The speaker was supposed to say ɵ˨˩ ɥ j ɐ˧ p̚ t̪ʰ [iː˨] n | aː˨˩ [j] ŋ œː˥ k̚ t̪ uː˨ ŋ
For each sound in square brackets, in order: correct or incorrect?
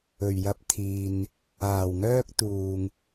correct, incorrect: w

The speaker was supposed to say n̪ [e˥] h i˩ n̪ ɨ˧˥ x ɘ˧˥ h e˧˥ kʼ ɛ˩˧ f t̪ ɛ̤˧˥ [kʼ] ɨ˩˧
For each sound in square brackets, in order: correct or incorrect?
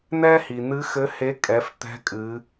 incorrect: ɛ˥, correct

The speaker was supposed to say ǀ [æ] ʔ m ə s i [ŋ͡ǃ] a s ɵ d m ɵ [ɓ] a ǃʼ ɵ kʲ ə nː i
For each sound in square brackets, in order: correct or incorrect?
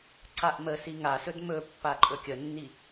incorrect: a, incorrect: ŋ, incorrect: pː

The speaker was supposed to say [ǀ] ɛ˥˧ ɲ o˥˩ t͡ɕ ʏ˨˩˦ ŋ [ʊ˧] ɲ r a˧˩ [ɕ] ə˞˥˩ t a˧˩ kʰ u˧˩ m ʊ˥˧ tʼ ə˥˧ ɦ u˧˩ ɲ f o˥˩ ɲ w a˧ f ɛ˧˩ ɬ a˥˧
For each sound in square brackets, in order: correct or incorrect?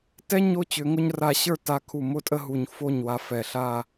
incorrect: t, correct, correct

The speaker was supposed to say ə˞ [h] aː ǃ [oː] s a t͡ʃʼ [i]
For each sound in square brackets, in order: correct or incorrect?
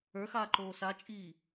incorrect: x, correct, incorrect: iː

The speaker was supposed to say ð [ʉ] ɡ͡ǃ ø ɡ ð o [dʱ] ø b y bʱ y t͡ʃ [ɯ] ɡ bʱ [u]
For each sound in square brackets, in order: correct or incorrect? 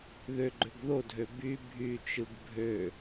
incorrect: ø, correct, correct, incorrect: ø

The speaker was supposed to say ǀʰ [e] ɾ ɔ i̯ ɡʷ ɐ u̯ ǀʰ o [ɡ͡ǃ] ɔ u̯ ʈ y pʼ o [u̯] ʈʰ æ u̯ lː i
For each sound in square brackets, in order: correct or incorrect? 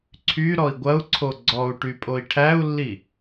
incorrect: y, incorrect: ɡ͡ǀ, incorrect: i̯

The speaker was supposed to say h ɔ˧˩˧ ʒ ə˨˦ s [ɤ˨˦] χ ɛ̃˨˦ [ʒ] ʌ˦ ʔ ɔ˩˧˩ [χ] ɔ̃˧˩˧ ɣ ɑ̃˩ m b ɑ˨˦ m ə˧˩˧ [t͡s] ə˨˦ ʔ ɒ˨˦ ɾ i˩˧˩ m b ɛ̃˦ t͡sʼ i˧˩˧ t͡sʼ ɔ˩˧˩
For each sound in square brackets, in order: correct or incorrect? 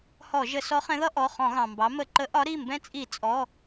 incorrect: ɔ˨˦, incorrect: ð, correct, incorrect: ǃ

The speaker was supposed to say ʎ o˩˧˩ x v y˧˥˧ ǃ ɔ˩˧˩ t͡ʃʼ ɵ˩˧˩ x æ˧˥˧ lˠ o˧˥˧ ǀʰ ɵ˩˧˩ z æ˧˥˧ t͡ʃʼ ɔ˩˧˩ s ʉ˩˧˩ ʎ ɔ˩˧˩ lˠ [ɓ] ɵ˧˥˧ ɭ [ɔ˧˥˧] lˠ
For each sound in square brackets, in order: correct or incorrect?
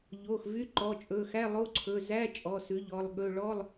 incorrect: ɠ, correct

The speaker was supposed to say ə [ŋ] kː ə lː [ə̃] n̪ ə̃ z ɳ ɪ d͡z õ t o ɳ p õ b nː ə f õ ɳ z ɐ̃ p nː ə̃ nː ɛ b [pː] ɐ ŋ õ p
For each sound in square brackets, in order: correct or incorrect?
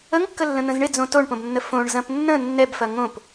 correct, correct, incorrect: f

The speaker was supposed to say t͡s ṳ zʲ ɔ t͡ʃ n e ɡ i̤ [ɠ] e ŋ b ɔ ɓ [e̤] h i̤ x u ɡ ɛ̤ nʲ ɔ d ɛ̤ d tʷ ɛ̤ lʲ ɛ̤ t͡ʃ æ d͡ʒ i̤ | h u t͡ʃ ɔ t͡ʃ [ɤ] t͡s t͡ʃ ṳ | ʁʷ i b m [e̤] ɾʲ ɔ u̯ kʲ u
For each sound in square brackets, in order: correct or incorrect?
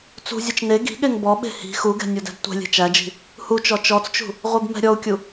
correct, correct, incorrect: ɔ, incorrect: ɛ̤

